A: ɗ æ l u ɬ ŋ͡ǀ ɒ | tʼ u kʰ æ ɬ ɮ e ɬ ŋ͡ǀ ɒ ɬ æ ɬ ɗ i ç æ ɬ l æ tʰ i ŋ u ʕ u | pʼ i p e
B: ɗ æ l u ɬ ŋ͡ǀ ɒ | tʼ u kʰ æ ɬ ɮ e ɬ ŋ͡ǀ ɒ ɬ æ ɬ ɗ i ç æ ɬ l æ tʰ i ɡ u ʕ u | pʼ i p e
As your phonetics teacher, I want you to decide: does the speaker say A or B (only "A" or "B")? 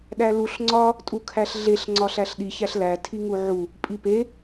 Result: A